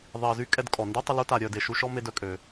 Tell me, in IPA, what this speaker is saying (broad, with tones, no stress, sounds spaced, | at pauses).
ðˤ i˩ ə̯ z y˥ kʼ ɛ˦ d kʼ ɔ˩ n d y˥ tˤ ə˦ l u˥ t a˨ ɾʲ œ˨ d e˩ ʃ u˦ ʃ ɔ˥ m e˦ d œ˦ kʼ ø˩